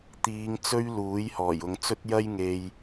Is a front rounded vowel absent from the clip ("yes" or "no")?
yes